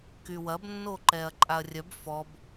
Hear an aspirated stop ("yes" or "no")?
no